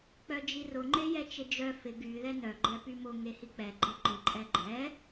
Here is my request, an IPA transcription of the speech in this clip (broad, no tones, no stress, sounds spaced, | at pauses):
k͡p œ d͡ʒ i r ʊ ŋ͡ǃ e j ɛ t͡ʃ ɪ d͡ʒ œ f ɪ ɡ y ð ɛ n œ ɡ͡ǃ ɛ p y m ʊ ŋ e h i k͡p ɛ ɡ͡ǃ ɛ ǃ ɪ ǃʼ ɛ ɡ͡ǃ ɛ